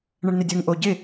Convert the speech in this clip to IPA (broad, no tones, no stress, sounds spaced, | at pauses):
ɳ ə ɳ n ɪ dʲ ɘ ŋ ʔ o ɟ ɪ